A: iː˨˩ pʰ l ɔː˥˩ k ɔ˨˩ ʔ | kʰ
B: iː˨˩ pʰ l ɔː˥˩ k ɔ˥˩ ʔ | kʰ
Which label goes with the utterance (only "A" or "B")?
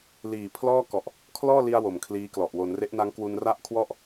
A